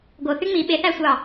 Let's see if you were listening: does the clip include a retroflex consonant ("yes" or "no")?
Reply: no